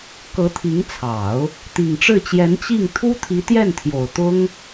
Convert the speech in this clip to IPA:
k ɤ˧˥ t̪ʰ i˧˥ ŋ t͡sʰ ɑ˨˩˦ ʊ̯ | t̪ i˨˩ ŋ ʈ͡ʂ ɻ̩˥˩ t͡ɕ j ɛ˧˥ n t͡ɕ i˥˩ ŋ t̪ʰ u˥ t̪ʰ i˧˥ t̪ j ɛ˥˩ n t̪ʰ j o˨˩ ʊ̯ t̪ ʊ˥ ŋ

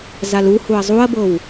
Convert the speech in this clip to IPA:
z a l u h u ɐ̯ zˤ u ɐ̯ b ɤ w

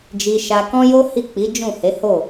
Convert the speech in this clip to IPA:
d͡ʒ i˧ ʃ a˧ k ɔ̃˦ j o˦ h i˦˨ k͡p i˨˦ d͡ʒ ũ˦˨ h e˨˦ h o˦˨

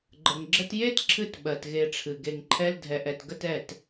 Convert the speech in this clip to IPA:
ɡ͡ǃ ə˨ ŋ ɡ͡ǁ ə˦ t j e˦ t ǁʰ ɨ˦ t ɓ ɜ˨ t ɣ e˧ ʈ͡ʂʰ ɨ˨ ɡ e˨ ŋ ǃʰ ɛ˧ l dʱ ɛ˨ ʔ ɛ˨ t ɡ ə˦ t ɛ˦˨ t

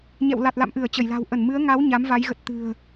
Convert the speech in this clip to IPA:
ɲ ɛ̰˧˨ w l a˨˩ t̚ l a̰˧˨ m ʔ ɨ˧˩ ə̯ t͡ɕ ə˧˩ j l a̤˨˩ w ʔ ə˧˩ n m ɨ˨˦ ə̯ ŋ a˨˦ w ɲ a˨˦ m v a˨˦ j ɣ ə˨˩ t̚ t̪ ɨ̤˨˩ ə̯

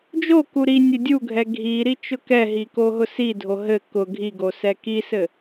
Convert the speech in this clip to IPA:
d͡ʒ o k u ɾ i nʲ ɘ dʲ u ɡʱ ɛ ɡʱ i ɾ i t͡ʃ ʊ k ɛ ɦ i k o ɦ ʊ s i dʱ o ɦ ɘ k ʊ ɡʱ i ɡ o s ɛ k i s ɘ

